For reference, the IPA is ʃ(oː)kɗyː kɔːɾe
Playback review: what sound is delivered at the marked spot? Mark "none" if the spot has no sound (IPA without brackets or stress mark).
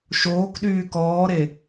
oː